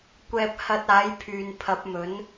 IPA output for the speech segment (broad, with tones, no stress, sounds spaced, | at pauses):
kʷ ɛː˧ p̚ h ɐ˧ t̚ aː˨˥ j pʰ yː˨ n pʰ ɐ˨˥ p̚ m ɵ˨˥ n